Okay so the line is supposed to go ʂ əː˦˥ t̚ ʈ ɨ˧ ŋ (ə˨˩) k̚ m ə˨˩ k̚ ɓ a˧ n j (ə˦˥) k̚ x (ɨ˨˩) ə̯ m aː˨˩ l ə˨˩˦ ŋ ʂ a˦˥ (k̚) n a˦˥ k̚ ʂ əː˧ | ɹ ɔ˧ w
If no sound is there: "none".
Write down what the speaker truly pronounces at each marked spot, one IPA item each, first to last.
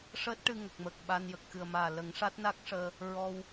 ə˨˩, ə˨˩, ɨ˨˩, t̚

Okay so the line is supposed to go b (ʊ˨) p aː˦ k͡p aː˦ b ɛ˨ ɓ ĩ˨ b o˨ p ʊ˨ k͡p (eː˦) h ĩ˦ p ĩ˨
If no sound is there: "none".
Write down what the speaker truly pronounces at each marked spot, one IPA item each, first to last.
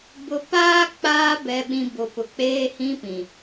ʊ˦, eː˦

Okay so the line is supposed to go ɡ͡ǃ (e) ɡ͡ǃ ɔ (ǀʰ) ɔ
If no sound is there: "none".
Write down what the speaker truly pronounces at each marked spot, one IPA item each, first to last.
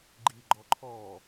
i, ǃʰ

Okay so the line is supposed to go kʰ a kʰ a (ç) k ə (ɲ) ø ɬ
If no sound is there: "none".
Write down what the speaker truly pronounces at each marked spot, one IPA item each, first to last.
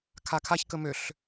ç, m

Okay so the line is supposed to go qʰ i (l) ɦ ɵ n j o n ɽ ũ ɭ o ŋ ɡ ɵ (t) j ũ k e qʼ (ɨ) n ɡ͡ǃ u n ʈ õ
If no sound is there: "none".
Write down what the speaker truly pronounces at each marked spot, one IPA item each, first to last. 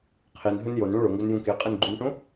n, n, ɨ

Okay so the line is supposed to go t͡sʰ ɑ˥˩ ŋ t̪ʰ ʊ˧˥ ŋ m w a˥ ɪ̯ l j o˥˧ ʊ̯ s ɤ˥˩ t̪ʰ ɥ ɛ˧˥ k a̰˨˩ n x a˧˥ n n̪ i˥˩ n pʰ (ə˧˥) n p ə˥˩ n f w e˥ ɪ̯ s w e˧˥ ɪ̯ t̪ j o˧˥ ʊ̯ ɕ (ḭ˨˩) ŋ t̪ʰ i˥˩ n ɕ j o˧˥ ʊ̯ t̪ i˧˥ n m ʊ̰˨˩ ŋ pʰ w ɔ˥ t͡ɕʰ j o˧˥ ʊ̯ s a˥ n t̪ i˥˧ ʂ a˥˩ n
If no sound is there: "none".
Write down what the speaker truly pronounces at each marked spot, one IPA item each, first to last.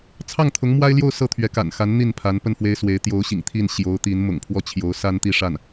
a˧˥, ḭ˨˩

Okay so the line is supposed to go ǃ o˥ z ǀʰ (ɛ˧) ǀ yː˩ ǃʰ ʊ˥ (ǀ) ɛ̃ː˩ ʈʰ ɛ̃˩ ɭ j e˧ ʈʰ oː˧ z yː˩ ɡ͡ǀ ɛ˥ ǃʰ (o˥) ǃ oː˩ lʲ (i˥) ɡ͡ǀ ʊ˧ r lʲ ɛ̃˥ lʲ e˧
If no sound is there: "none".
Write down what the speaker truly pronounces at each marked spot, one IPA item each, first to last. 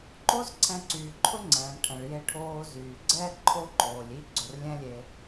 ɛ̃˧, ŋ͡ǀ, o˥, i˥

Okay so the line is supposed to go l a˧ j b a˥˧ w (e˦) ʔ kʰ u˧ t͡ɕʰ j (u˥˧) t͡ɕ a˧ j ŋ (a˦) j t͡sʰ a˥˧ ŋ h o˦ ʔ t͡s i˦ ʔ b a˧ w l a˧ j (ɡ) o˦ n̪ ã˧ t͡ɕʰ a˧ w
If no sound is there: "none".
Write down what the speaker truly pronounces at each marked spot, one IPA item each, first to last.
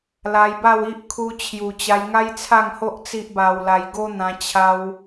i˦, u˨˩, a˦, ɡ

